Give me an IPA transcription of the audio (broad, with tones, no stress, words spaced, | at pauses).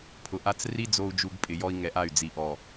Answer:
pʰʊ˨ʔa˦t͡s ri˦ d͡zo˨u̯d͡ʒu˨ɡ pʼɪ˨ jɔ˦i̯ŋɛ˨˦ʔa˦˨y̯ d͡zi˨ʔɔ˨